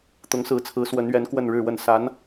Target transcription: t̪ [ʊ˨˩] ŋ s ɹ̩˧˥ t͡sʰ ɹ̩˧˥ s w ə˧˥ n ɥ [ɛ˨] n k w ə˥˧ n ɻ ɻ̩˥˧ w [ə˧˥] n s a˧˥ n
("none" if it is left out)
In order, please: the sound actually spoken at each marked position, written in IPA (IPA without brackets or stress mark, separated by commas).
ʊ˧˥, ɛ˧˥, ə˥˩